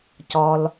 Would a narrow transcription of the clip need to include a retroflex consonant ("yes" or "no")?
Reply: no